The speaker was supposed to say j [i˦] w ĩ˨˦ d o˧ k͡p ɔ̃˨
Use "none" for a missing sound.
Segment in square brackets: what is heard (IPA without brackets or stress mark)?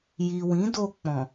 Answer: i˨